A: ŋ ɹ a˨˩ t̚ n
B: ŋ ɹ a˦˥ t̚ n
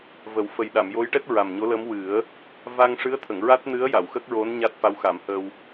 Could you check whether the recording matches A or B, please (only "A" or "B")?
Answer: B